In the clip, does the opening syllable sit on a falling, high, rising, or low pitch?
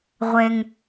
high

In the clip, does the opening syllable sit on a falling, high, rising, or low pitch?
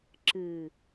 low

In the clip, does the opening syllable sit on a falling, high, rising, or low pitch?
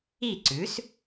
falling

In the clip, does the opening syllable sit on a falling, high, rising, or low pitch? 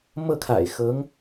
falling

